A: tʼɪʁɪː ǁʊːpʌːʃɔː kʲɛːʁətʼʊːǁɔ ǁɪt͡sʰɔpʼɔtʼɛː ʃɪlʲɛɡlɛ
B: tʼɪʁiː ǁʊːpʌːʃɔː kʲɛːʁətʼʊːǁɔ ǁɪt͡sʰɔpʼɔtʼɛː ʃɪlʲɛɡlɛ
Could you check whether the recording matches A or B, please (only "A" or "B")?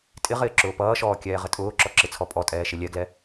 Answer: A